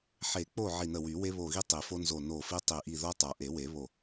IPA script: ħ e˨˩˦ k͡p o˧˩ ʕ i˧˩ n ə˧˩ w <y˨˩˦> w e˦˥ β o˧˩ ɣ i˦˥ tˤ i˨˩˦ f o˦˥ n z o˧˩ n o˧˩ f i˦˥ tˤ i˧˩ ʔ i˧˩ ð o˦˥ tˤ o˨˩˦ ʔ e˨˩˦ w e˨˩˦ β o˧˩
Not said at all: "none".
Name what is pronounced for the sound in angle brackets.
y˨˩˦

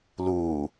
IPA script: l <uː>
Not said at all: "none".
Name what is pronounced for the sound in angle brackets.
uː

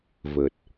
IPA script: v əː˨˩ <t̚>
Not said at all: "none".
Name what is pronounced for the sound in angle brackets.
t̚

